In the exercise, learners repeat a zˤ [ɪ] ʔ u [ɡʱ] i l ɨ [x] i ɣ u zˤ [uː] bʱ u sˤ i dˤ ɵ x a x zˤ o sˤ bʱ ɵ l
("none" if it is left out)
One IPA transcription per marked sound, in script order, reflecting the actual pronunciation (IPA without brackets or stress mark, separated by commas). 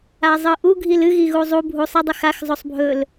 ɨ, ɡʱ, ɣ, u